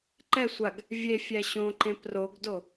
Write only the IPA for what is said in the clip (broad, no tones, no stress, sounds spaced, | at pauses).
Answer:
ǃ ɛ sʷ a ɡ | vʲ e fʲ æ ɕ õ ǃ ẽ p r o ɡ d o